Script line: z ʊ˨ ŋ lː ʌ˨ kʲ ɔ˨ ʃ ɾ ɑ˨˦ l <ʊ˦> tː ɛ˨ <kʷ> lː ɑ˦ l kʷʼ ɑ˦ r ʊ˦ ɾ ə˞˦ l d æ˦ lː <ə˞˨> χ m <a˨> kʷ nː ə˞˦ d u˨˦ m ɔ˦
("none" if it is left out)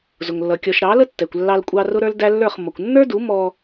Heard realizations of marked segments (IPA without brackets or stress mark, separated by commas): ə˦, kʷ, ə˞˦˨, ʌ˨